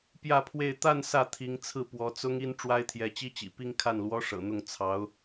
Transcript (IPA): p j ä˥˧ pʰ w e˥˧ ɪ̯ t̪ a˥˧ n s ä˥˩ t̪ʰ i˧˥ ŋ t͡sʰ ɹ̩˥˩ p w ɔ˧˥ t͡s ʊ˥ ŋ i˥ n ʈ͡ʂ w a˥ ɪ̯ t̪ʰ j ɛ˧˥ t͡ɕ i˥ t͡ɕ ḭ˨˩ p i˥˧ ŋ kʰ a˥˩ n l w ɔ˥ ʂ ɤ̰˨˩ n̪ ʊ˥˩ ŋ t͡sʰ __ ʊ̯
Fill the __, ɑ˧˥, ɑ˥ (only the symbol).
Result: ɑ˧˥